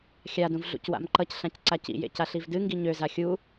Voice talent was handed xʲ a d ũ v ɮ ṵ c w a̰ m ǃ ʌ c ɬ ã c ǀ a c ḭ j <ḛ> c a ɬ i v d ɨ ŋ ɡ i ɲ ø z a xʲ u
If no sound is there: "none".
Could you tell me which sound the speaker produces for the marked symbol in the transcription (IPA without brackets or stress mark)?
ḛ